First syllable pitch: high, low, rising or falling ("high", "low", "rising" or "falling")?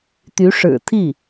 rising